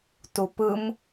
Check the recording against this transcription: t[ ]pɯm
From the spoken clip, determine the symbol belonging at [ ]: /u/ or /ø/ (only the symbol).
u